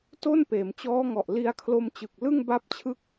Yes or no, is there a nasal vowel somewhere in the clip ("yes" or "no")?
no